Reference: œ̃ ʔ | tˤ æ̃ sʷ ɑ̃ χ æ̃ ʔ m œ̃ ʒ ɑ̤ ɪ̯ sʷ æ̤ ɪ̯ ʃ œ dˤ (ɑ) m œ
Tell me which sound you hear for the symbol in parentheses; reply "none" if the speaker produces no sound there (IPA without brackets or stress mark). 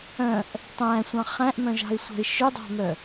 ɑ̤